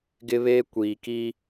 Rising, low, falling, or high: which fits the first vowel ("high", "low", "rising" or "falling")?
high